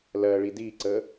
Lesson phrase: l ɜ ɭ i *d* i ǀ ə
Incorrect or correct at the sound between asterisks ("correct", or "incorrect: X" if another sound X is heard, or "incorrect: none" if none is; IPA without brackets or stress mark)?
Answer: correct